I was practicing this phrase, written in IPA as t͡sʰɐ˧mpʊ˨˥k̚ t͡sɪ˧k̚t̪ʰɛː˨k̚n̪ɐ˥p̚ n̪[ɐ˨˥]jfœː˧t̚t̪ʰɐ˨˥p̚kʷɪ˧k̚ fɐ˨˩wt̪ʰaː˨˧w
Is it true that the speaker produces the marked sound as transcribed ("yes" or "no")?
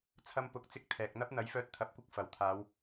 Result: yes